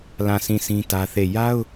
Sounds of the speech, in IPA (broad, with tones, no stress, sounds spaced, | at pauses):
l ã˦˨ s ĩ˦˨ s ĩ˦ t ä˦ θ e˦˨ j a˦ ʊ̯